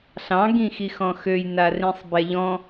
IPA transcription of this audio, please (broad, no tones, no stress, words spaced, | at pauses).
ɬɑ̃ ɡĩxixɔ̃xøj narĩsˤbɛʎɔ̃